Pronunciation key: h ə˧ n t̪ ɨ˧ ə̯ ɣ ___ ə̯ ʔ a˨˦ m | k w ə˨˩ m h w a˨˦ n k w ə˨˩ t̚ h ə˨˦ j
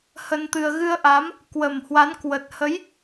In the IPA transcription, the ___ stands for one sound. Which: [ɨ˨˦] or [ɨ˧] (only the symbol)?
ɨ˧